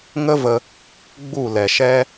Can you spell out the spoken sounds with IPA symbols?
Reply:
ŋ ə˦ v ə˧ | ɡ͡b u˦˨ l ɛ˨ ʃ ɛ˦

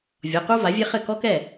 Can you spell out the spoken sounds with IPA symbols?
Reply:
vʲ ɔ˩˧˩ q u˥ v a˩˥ vʲ e˥ χ ɘ˥˩ k ɔ˥ k ɛ˥˩

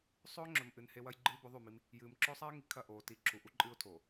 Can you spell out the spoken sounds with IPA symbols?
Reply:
sˤ ɵː˦ ŋ͡ǁ ɵ˨ m ʔ ɨ˨ n h e˦ w ɐ˦ j ɡ͡ǃ ɨː˦ b ɵ˨˦ ðˤ ʉ˦˨ m i˦ m | j ɨː˨ m ǁ ɵː˦ sˤ a˦ ɪ̯ ŋ i˨ kʰ ɐ˦˨ ʔ oː˨ t i˨˦ ǁʰ u˨ ʔ u˦ ǃʼ ɨː˦ ʊ̯ tʰ oː˨

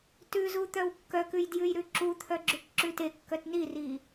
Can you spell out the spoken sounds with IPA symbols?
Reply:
t ʉ z u t̪ œ w kː œ k ʉ j d j ʉ j ɾ ʉ ǁ u t̪ʰ œ ɡ͡ǁ ʉ k ǁ ʉ t e kː œ t n i r i

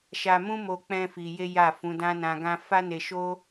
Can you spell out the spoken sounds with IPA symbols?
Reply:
ʃ a˧ m ũ˦ m o˧ k͡p ɛ̃˦ f i˧ j e˦ j a˦˨ f ũ˨˦ d ã˦ n ã˧ ɡ ã˦ f a˦ n e˧ ʃ o˦

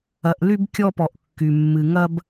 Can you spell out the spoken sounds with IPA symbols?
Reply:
ɐ˨ ʔ l y˦ b kʲ ɔ˦ p ɔ˨ ʔ kː y˨ mː ɨ˨ ŋ ɐ˦ b

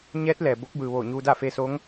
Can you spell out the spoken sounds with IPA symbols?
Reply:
ɲ ɛː˧˥ t̚ l ɛː˩ b o˧˥ k̚ b ɯː˩ ʋ oː˧˩ ɲ uː˧ d aː˥˨ f eː˧ s oː˧˥ ŋ

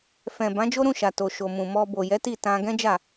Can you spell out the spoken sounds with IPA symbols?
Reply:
f ɛ̃˨ b ã˨˦ d͡ʒ o˦ ɾ ũ˦˨ ʃ a˨ t o˨ ʃ o˨ m ũ˨ m ɔ˧ b o˨ j ɛ˨˦ t i˦˨ t ã˧ ɡ ɛ̃˦ d͡ʒ a˦˨

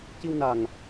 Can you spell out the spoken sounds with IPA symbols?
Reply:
c i˧ w n a˨˩ ŋ

